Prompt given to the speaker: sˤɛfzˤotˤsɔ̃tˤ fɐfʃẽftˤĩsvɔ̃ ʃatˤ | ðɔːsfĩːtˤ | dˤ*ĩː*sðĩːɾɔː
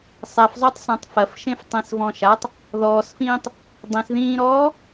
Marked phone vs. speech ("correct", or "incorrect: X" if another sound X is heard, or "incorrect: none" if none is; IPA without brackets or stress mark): incorrect: ĩ